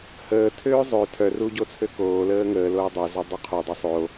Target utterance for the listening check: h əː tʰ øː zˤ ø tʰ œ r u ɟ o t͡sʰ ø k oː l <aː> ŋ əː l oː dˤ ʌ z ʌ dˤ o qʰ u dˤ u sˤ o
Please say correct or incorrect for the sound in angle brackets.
incorrect